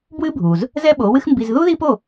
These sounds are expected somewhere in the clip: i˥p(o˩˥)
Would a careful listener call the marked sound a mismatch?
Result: yes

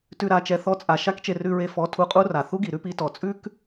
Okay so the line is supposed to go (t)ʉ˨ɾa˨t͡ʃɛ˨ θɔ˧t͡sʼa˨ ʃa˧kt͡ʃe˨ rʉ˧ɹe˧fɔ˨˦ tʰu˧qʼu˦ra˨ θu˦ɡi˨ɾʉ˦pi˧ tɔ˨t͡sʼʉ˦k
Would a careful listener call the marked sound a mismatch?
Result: no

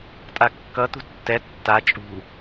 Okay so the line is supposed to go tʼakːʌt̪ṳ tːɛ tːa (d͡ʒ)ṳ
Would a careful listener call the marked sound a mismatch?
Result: yes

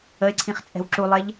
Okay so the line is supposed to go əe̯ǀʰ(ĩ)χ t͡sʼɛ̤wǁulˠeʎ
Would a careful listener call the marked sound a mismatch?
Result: no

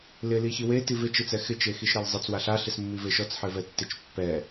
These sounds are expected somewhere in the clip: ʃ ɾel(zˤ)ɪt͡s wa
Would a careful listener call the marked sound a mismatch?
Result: no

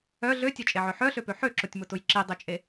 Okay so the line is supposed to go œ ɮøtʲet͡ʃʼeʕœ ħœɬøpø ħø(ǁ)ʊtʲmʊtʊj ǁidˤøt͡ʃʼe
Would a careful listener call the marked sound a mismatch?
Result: no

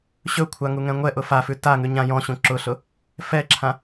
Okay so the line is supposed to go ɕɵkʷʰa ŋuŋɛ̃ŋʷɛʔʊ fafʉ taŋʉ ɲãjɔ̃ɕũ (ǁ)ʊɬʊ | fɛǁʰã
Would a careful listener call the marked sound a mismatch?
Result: no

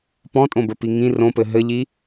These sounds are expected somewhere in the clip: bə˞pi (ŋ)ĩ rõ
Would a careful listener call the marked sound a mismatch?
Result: no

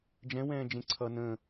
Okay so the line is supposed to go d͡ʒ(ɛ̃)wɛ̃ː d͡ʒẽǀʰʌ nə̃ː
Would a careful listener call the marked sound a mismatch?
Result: no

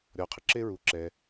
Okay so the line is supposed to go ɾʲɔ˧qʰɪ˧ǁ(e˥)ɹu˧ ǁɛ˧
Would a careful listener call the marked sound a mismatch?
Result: no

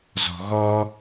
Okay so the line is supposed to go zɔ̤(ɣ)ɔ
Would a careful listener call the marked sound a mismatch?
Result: no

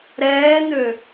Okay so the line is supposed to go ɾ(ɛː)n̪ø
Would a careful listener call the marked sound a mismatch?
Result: no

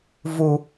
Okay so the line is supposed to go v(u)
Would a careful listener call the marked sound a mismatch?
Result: no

